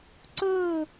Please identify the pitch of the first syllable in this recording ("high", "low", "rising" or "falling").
falling